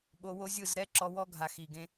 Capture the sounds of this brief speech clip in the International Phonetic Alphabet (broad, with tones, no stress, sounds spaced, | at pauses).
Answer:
ɓ o˧ w o˦ zʲ ɯ˦˨ z ɾ ɛ˦ ǁ ɔ˧ w ɔ˦ ɡʱ a˨ x i˨ ɡ ẽ˧